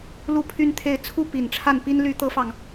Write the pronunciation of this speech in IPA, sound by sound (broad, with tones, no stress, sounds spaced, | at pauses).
l u˥˩ pʰ y˥ n t̪ʰ e˥˩ ɪ̯ t͡sʰ u˥ p i˨˩ n ʈ͡ʂʰ a˥˩ n p i˥ n l y˥ t̪ ɤ˥ f ɑ˨ ŋ